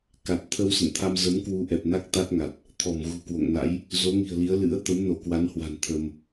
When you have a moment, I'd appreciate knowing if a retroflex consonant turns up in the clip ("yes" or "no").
no